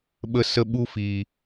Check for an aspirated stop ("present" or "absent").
absent